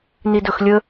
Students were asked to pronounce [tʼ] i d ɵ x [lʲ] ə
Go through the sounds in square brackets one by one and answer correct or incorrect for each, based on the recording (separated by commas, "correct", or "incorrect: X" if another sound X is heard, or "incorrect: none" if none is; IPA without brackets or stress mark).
incorrect: n, correct